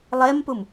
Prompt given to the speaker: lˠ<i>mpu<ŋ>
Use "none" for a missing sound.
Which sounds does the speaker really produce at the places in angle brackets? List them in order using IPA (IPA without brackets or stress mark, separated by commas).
e, m